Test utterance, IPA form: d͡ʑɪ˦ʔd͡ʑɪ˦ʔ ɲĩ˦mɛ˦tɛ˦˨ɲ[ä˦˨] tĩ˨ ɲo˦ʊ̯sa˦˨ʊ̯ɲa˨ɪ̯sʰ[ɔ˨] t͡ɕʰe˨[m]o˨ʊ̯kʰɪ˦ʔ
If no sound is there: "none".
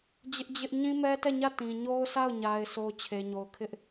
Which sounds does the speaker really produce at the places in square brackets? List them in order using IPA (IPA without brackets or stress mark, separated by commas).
ä˦˨, o˨, ɲ